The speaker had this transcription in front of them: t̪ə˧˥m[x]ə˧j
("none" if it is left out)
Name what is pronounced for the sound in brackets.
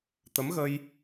ɣ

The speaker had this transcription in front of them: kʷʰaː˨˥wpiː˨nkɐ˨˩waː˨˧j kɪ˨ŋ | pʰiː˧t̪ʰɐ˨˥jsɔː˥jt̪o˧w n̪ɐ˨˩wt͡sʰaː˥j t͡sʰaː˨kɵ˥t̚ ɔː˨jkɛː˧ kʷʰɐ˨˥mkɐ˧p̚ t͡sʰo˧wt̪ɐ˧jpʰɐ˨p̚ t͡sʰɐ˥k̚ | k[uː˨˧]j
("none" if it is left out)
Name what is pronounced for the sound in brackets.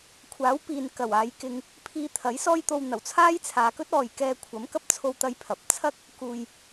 uː˧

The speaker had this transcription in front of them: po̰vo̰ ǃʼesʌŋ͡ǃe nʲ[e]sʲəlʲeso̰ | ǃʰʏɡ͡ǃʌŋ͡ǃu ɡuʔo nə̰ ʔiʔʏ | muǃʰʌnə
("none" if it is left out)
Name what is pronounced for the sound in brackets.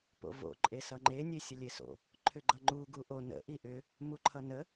e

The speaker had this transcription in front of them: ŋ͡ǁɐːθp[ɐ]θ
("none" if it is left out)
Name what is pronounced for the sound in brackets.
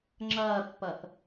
ɐ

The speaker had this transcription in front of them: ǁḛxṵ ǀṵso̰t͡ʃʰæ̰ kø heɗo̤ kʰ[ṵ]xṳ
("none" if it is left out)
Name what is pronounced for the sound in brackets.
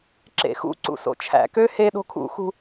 ṵ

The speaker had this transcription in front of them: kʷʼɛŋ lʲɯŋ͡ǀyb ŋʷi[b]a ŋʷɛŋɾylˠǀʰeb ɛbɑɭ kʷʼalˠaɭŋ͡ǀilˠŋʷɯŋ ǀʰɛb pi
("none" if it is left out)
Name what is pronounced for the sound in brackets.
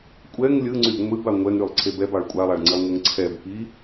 b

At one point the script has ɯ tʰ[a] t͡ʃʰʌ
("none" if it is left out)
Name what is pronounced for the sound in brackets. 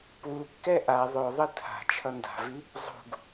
a̤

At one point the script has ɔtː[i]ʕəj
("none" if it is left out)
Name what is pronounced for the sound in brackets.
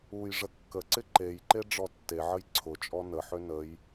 e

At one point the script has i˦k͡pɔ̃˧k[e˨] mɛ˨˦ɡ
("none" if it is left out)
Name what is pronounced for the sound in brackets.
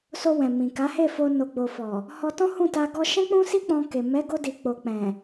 e˨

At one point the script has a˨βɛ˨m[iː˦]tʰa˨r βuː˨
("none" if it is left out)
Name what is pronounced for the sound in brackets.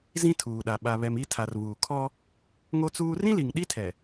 i˦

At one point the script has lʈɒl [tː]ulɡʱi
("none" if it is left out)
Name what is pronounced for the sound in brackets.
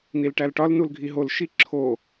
n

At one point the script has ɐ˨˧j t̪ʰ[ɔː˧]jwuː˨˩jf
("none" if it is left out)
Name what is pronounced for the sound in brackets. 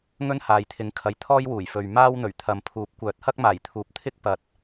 ɔː˥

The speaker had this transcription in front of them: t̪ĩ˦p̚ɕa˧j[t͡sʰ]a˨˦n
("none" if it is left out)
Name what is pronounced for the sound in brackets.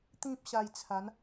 t͡sʰ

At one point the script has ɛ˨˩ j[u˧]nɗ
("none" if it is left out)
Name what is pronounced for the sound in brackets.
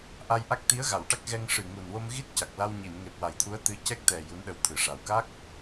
u˧˥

